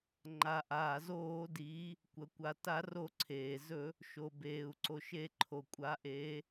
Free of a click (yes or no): no